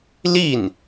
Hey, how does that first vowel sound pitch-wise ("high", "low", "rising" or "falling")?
falling